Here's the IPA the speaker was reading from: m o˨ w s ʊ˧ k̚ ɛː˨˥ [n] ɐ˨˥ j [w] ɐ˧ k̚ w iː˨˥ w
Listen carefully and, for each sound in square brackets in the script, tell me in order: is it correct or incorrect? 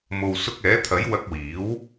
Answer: incorrect: t̪ʰ, correct

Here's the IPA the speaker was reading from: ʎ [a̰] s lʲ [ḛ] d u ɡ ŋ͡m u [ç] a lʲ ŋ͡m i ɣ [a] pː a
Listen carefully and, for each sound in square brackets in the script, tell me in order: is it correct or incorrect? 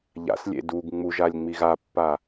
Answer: correct, correct, incorrect: ʒ, correct

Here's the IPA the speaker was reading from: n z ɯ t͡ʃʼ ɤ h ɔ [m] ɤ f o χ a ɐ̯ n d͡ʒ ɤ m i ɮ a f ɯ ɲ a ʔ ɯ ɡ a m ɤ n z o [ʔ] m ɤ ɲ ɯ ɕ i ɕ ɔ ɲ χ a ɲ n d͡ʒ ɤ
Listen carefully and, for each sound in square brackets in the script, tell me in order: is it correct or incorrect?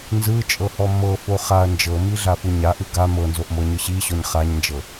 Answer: correct, correct

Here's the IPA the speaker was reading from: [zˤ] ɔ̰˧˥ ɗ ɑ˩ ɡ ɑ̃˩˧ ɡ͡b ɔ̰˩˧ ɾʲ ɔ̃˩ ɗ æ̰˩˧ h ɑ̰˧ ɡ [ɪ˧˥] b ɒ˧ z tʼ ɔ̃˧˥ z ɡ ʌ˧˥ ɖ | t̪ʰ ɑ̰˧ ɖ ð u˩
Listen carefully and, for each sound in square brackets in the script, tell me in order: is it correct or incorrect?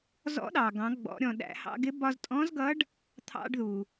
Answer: incorrect: z, correct

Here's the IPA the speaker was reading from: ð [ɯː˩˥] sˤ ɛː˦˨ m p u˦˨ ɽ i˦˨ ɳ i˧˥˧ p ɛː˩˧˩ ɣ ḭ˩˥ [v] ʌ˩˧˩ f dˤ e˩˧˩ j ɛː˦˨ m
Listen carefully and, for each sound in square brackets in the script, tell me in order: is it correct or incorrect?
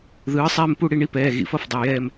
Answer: correct, incorrect: f

